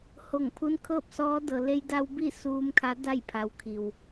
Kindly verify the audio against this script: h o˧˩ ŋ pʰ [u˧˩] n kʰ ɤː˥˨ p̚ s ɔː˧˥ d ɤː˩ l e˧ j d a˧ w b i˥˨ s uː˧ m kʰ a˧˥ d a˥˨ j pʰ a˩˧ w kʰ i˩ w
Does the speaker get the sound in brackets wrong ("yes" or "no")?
yes